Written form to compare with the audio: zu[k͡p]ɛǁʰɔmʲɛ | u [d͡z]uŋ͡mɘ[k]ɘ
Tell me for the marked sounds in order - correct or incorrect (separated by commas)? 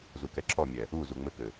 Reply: incorrect, incorrect, correct